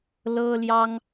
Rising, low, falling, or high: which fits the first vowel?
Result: high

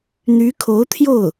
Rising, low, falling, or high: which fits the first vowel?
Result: rising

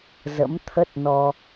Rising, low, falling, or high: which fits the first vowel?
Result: rising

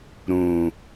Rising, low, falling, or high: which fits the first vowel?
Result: low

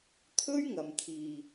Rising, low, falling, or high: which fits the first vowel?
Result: high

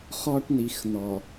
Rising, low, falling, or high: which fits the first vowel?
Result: high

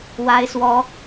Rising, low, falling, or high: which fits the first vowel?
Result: high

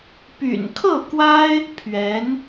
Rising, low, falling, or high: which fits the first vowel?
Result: low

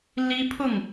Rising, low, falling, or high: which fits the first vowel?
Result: high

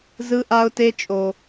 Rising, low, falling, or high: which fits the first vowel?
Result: high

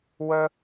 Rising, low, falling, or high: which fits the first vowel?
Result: high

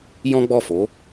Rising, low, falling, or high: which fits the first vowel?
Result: high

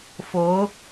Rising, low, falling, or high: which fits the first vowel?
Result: rising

